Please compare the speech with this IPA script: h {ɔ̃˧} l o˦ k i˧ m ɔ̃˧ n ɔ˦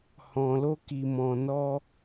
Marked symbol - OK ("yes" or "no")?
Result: yes